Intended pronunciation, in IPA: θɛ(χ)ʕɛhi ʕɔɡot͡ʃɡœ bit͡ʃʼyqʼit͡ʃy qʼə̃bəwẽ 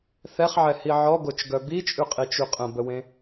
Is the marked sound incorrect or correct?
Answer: correct